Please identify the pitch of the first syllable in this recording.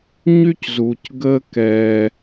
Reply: high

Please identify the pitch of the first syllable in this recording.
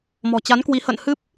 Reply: low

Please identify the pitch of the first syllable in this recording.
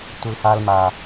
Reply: low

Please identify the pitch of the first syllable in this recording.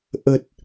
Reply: low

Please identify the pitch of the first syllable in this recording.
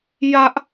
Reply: high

